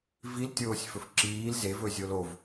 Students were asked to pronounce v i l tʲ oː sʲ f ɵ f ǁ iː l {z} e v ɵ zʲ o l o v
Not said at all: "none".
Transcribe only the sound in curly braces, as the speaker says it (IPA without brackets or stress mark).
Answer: z